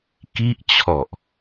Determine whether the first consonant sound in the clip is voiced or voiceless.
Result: voiceless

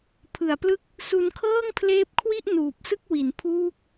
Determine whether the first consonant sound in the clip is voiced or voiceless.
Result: voiceless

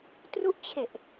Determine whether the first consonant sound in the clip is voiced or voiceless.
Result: voiceless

